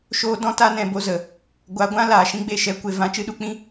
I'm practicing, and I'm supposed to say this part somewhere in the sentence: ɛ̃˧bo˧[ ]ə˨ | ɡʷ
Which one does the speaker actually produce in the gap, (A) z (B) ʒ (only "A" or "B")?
A